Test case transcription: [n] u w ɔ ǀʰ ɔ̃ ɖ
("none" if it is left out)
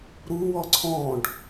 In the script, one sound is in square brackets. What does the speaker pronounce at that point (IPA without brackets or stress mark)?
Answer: ɾ